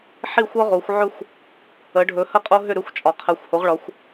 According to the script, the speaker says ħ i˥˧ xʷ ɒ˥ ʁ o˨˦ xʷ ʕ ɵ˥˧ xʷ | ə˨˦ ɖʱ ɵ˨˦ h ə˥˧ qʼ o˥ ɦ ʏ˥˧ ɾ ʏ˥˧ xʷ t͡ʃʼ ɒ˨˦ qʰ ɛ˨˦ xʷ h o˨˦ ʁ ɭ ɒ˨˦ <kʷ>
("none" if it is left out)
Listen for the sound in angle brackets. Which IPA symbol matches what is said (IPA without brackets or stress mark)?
xʷ